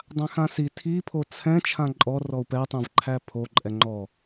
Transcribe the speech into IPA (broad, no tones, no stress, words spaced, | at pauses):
dˤãxãsi tʰipʰo t͡sʰɛ̃ t͡ʃʰãǃʼɔ rɔu̯pɛtˤɛ̃v ǃʰæpʰo ǃʼɛŋ͡ǃɔ